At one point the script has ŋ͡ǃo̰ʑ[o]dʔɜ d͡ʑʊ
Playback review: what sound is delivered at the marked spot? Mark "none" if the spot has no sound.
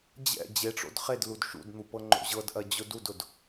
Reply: ɤ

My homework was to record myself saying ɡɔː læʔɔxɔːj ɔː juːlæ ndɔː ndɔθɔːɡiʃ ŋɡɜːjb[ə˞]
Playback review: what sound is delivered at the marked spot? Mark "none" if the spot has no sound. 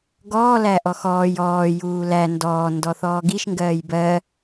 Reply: ɜ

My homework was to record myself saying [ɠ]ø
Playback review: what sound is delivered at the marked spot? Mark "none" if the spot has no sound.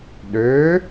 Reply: ɗ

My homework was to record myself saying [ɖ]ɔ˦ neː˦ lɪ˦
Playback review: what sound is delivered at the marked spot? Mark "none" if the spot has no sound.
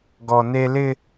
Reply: ɡ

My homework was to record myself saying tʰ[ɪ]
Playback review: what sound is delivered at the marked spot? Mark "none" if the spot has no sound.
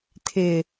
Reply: ɪ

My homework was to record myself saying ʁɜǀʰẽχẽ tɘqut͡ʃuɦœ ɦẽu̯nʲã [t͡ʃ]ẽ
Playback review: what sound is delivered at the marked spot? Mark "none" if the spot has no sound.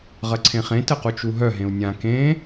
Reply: k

